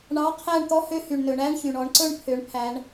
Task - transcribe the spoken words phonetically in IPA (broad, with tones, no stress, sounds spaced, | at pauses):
ɳ ɑ˧˥˧ qʰ æ˥˨ ɳ t̪ ɔ˥ h ø˧˥˧ h y˩ ɳ n ɵ˩˧ ɳ æ˧˥˧ ɳ ç y˩ ɳ ɔ˩˧ ɳ ǀ ɵ˥˨ ɳ pʰ ø˩˧ ɳ pʰ æ˩˧ ɳ